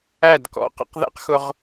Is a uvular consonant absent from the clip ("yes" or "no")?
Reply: no